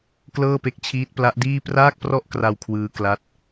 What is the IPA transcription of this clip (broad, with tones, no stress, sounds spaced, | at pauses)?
k l ɤː˥˩ p e˦˥ k̚ t͡ɕʰ iː˦˥ t̚ p l a˦˥ ʔ d iː˥˩ p r aː˥˩ k̚ p r ɔ˥˩ ʔ k r a˧ w kʰ w ɯː˦˥ k l a˦˥ t̚